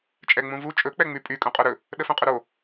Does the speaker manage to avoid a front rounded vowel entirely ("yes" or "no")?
no